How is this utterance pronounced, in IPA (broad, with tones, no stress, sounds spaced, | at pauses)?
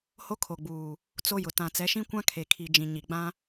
h o˦ kʰ o˨ ɡ͡b uː˨ | t͡s o˦ j ʊ˨ t ã˨ t͡s ɛ˨˦ ʃ ĩ˦ kʷ ã˦ kʰ e˨ kʰ i˨ d͡ʒ ĩ˨ ɲ i˨ ɡ͡b ã˦